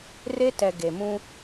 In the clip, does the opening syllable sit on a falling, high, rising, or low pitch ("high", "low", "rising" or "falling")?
high